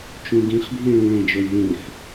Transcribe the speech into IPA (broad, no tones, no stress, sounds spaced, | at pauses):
t͡ʃ ũ ɡ ĩ χ bʱ ĩ ɭ ũ ɭ ẽ d͡ʒ o lʲ ð ũ ħ